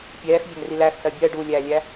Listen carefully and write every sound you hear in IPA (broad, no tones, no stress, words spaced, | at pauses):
pʲɛːx vʲæŋrilæxsɜ bʲɜ ɖulʲæːlʲæ